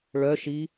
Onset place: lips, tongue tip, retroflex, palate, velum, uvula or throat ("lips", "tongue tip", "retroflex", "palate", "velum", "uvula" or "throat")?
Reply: retroflex